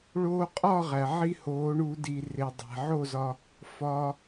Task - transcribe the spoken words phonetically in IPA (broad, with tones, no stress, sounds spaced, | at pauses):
ɭ oː˧ qʼ ɒ˥˨ ʁ æ˩ ʕ i˧ h oː˩˧ ɳ u˧˩˧ d i˩ r e˩ dˤ æ̤˩ ʕ o˥˨ z ɒ˧ | f ɒː˩